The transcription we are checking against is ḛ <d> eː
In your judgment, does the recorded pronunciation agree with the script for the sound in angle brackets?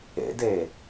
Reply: yes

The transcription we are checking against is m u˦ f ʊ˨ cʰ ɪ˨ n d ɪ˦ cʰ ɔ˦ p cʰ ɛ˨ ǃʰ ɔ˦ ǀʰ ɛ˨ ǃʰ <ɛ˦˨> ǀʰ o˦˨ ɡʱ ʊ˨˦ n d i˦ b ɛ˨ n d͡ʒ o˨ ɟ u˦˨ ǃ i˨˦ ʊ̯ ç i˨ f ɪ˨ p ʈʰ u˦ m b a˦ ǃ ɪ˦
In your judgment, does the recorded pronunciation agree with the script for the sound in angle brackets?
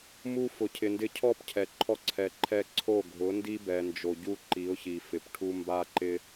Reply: yes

